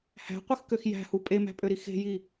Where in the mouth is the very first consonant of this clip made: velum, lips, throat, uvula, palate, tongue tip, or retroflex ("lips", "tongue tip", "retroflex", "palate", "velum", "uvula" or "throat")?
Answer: throat